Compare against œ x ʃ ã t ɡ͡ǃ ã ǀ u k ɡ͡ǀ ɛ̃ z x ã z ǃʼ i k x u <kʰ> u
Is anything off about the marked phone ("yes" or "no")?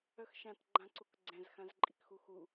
yes